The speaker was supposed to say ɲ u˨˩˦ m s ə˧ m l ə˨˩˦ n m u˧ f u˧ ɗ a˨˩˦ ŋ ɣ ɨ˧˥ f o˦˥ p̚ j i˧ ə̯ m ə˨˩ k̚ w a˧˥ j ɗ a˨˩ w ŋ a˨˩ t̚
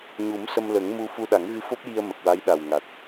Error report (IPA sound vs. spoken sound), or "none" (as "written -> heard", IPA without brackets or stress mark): n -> ŋ